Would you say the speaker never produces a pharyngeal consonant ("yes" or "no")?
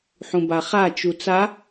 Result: no